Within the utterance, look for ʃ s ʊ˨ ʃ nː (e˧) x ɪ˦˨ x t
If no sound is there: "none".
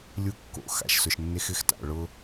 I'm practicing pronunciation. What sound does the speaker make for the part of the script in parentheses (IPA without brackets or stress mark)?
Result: e˧